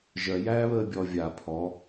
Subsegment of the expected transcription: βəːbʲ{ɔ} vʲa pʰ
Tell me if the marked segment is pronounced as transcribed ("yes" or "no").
yes